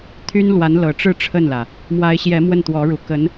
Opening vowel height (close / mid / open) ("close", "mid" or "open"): close